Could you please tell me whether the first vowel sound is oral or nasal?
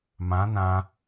nasal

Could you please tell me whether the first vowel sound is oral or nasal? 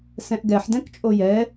nasal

